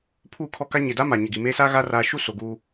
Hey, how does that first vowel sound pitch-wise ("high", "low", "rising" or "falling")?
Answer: falling